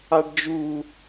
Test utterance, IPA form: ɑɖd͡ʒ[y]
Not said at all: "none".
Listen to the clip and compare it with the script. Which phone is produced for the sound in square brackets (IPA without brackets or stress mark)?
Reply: u